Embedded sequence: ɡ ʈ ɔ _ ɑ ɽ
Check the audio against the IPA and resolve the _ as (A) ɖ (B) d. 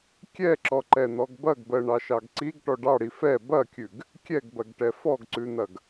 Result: A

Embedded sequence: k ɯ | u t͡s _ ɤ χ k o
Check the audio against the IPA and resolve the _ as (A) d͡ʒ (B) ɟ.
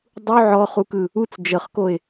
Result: A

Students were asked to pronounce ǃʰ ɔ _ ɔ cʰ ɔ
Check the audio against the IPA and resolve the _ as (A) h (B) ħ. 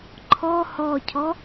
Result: A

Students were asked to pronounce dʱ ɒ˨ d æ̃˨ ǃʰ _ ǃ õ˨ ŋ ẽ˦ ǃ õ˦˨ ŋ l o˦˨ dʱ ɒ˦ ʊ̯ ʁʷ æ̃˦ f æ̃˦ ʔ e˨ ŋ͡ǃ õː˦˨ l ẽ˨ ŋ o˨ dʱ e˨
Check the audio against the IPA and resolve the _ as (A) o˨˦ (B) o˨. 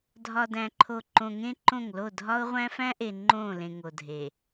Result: B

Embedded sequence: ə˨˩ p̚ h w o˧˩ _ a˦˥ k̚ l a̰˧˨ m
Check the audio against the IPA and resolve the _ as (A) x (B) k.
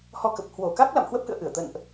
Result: B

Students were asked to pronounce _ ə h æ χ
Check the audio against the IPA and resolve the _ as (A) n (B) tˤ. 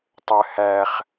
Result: B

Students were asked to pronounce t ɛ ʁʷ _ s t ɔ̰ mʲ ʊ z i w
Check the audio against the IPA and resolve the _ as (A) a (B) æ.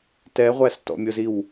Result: B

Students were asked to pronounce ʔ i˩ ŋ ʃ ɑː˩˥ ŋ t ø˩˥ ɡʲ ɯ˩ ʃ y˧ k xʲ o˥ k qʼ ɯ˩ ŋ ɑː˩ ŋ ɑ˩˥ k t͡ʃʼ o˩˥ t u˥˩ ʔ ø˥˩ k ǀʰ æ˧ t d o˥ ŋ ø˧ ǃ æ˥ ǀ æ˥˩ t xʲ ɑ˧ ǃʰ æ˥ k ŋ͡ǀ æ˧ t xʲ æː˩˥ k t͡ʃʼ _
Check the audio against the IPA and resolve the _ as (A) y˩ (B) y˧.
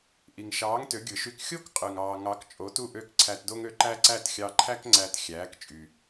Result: A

